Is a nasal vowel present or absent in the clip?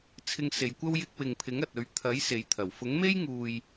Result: absent